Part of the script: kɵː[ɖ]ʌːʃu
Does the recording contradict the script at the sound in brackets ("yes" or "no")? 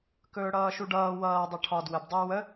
yes